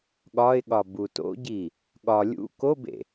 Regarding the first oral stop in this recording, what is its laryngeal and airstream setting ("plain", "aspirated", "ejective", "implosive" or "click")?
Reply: implosive